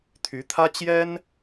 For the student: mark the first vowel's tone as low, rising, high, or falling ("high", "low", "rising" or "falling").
rising